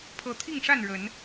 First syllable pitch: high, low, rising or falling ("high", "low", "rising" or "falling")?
rising